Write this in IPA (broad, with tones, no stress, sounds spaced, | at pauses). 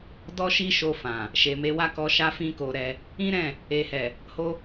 d ɔ˦ ʃ i˦ ʃ o˧ f ã˨ | ʃ e˨ m e˧ w a˦ k ɔ˧ ʃ a˦ f ĩ˦ k o˧ ɾ ɛ˧ | ĩ˦ ɾ ɛ̃˦˨ | e˨ h ɛ˨ | h o˦